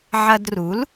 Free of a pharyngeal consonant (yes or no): no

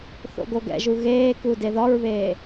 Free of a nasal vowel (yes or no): yes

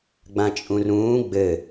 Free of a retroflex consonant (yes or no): yes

